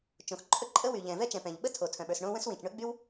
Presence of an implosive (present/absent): present